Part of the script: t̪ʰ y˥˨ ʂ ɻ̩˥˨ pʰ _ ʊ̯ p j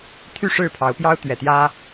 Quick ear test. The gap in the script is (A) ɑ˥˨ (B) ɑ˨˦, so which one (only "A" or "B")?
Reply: B